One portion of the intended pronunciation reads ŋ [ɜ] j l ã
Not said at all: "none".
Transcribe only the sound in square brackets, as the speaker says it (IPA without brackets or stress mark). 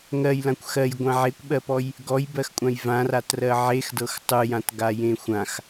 ɜ